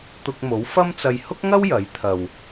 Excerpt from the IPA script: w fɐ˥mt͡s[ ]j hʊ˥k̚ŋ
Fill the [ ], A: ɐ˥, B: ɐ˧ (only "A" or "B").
B